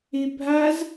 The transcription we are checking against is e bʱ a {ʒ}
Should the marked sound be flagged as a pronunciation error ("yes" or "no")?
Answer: yes